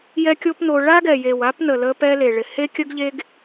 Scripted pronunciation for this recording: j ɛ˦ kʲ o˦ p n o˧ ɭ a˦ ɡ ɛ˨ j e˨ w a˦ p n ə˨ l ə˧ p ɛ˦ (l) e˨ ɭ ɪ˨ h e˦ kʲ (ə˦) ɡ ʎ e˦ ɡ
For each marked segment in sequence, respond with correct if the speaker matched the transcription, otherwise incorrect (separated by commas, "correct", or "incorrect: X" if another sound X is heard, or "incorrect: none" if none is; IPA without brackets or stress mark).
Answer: correct, correct